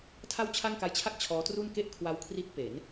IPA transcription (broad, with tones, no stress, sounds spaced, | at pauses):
tʰ a˥˩ w t͡ɕʰ a˥˩ ŋ k a˦˥ j t͡ɕʰ a˥˩ k̚ t͡ɕʰ ɔː˦˥ t r u˥˩ n k e˥˩ ʔ kʰ w a˦˥ w kʰ r i˦˥ t̚ p e˩˦ n